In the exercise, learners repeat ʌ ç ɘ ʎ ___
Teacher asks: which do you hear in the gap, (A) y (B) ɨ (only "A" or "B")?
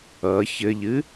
B